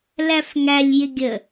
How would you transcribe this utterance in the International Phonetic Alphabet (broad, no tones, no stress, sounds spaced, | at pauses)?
l æ f ŋ æ lʲ j ɪ ɡʲ ə